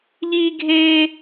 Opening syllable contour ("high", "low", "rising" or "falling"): high